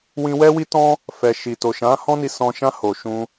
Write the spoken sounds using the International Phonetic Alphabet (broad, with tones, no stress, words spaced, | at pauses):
wĩ˧ wɛ˦wi˦tɔ̃˦ | fɛ˨ʃi˨ to˨ʃã˨˦hɔ̃˦ ni˧sɔ̃˧ ʃã˧ ho˨ʃũ˧